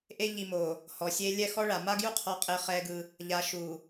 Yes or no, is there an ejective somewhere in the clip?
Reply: yes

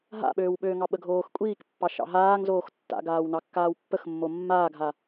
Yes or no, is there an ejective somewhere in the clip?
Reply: yes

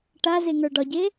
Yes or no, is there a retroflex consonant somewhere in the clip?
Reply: yes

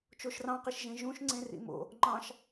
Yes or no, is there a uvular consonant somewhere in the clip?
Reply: yes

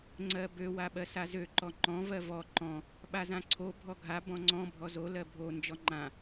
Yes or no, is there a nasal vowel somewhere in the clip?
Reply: yes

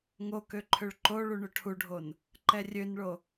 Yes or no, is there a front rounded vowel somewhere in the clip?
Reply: yes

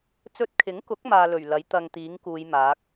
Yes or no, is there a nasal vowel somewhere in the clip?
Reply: no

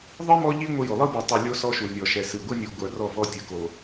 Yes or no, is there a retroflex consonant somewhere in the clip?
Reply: no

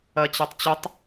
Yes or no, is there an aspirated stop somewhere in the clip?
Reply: no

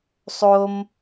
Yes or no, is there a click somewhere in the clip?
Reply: no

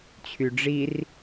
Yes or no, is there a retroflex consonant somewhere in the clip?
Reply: yes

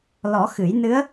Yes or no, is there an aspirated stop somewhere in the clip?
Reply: no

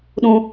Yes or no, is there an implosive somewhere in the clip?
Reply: yes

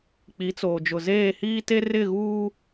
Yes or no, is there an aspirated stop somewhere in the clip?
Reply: no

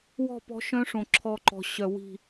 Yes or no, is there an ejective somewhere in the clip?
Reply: no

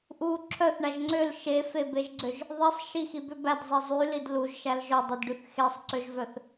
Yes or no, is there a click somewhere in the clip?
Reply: yes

